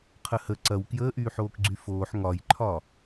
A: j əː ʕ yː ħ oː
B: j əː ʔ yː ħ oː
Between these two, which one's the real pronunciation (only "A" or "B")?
B